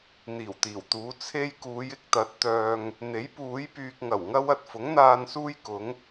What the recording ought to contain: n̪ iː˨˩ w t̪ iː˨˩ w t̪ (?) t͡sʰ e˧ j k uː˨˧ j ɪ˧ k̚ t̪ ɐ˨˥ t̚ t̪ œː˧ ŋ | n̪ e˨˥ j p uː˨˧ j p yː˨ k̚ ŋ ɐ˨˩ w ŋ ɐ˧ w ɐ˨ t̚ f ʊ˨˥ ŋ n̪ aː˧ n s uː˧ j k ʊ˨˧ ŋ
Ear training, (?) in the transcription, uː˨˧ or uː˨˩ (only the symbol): uː˨˧